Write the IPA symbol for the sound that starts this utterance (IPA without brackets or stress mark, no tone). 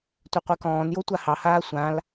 tʷ